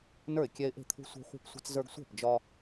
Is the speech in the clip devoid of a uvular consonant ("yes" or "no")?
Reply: no